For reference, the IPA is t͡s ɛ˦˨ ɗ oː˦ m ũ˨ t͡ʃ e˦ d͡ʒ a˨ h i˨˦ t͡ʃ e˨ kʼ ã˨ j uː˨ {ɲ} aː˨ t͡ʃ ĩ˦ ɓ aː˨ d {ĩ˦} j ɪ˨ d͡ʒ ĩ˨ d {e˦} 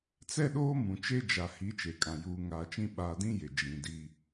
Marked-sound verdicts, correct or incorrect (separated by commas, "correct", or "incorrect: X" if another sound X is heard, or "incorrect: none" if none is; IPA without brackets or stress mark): incorrect: ŋ, correct, incorrect: i˦